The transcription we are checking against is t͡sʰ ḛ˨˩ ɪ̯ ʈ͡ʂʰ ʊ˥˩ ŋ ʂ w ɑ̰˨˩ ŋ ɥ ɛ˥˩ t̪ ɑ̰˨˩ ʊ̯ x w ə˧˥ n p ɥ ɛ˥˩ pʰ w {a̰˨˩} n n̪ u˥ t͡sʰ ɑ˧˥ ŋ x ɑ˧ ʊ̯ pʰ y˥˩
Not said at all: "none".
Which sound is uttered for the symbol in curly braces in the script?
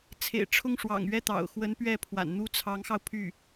a̰˨˩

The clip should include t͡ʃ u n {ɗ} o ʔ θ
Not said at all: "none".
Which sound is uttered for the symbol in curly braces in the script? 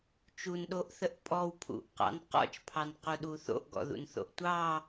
ɗ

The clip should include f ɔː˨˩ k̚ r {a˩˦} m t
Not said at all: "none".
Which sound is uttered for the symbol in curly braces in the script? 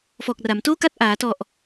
a˩˦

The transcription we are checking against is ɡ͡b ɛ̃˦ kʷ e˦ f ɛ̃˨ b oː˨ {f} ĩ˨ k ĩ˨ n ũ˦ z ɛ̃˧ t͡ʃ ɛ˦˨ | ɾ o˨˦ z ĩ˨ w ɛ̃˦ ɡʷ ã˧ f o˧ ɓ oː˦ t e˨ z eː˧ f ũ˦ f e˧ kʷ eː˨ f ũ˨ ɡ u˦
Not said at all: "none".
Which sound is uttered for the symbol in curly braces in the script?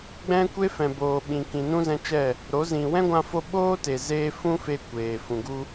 ɓ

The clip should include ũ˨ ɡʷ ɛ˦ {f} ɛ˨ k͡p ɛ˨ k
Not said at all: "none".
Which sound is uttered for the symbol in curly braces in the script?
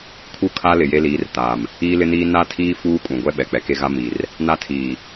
ɓ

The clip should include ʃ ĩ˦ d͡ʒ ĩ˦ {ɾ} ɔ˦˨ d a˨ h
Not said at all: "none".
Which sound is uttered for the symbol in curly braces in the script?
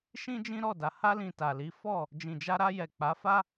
ɾ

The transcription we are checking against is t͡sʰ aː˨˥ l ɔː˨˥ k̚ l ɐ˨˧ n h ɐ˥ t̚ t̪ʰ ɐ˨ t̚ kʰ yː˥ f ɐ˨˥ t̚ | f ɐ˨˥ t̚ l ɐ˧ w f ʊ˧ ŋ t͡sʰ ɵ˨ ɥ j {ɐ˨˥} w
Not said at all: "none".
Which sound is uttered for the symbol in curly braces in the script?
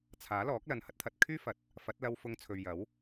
ɐ˨˥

